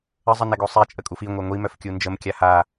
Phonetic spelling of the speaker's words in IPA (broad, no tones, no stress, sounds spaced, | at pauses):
ə zˤ ə n ɛ ɡ o sˤ ɛ t͡ʃʼ ə kʼ u f i ŋʷ œ ŋʷ i m œ f kʲ u n d͡ʒ ə m kʲ a h a